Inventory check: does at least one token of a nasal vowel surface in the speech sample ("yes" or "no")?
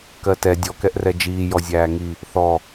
no